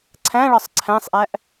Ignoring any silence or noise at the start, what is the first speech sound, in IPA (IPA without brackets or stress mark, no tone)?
ǀʰ